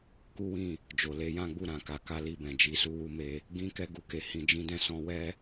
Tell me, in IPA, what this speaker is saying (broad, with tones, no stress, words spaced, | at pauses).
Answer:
ku˦wĩ˦˨ | d͡ʒo˨le˨˦jã˦ɡ͡bu˦˨ ɾã˨ka˨˦ka˦ li˦˨bɛ̃˨d͡ʒi˧su˦ wu˧me˧ | ɡĩ˦ kɛ˦ɡu˧ke˧ hĩ˧d͡ʒĩ˦dɛ̃˦ sɔ̃˧wɛ˦